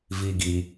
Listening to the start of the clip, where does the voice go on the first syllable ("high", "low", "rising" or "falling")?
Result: low